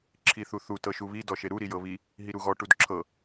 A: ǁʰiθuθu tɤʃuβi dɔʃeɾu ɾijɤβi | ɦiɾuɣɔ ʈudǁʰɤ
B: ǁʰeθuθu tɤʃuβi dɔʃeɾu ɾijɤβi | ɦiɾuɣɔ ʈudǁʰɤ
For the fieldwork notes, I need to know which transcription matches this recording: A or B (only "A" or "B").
A